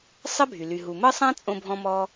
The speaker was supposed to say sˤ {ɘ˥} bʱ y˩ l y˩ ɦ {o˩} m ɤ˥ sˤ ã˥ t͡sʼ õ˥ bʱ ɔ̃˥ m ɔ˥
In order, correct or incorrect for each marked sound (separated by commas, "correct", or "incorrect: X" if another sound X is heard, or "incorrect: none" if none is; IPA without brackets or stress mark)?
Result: correct, incorrect: u˩